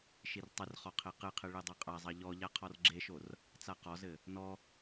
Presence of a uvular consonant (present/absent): present